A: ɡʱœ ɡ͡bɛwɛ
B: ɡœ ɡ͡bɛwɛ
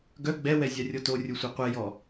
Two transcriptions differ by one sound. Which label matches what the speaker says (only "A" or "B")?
B